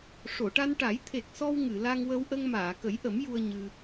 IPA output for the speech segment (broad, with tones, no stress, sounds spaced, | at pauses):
ʂ o˨˩˨ ʈ a˧ n ʈ a˨˩˦ j t̪ʰ e˨˩ k̚ s ɔ˧ w ŋ ɨ˨˩˨ l a˧ ŋ w ə˧ w ʔ ə˧ ŋ m aː˨˩˨ k ə˨˩˦ j ʔ ə˨˩˦ m j u˧ ə̯ ɲ ɨ˧